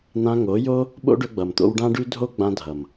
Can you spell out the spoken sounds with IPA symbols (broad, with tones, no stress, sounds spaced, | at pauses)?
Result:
n̪ ã˧ ŋ o˨˦ j o˦ | ɓ o̰˦ ɖ ɵ˧ ɡ͡b ʌ˨ m t̪ o̰˧ w ɖ ã˦ ɖ ʉ˦ dʱ o˦ ɡ͡b ã˧ dʱ ʌ˨ m